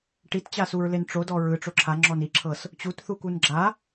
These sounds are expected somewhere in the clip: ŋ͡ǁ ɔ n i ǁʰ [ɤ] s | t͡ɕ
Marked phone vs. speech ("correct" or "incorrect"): correct